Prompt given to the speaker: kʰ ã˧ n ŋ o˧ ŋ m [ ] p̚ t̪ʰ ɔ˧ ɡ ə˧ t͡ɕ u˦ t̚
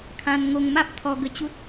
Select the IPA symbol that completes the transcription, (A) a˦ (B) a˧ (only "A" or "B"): A